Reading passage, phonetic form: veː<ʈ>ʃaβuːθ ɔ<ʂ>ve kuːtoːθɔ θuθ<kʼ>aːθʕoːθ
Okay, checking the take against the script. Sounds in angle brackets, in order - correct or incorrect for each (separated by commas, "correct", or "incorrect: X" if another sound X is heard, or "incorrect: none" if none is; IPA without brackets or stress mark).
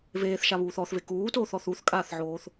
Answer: incorrect: θ, incorrect: θ, correct